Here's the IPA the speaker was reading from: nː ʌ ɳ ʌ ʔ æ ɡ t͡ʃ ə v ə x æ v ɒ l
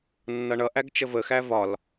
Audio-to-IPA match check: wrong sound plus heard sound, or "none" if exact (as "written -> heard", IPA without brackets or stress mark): none